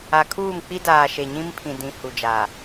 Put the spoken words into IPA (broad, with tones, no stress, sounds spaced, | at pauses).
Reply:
a˨ kʰ uː˦˨ m k͡p i˦ d aː˨ ʃ e˨ ɲ ĩ˦ m pʰ ĩ˨ d ĩ˨ h u˨ d͡ʒ a˨